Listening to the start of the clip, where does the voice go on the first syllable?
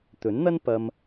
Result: rising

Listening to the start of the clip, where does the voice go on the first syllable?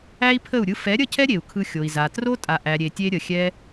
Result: high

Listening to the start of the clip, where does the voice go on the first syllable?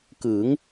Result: rising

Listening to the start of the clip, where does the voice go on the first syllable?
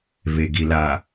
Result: low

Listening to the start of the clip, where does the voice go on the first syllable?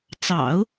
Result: low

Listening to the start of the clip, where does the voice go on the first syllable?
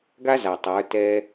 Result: high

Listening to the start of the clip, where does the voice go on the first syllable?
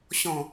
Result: low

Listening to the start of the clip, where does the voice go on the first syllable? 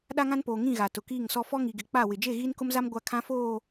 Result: high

